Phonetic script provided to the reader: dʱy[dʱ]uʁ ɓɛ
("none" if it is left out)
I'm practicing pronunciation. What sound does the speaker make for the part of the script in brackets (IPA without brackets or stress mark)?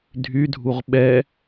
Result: dʱ